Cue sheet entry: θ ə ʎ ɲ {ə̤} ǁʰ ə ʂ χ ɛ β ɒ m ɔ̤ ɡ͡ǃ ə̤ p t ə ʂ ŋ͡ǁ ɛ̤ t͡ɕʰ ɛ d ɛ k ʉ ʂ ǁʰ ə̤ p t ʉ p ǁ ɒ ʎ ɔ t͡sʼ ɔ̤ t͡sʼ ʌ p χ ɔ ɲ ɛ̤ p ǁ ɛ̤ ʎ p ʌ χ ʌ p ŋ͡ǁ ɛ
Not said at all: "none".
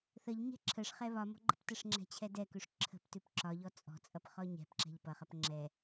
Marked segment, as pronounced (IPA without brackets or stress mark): ɛ̤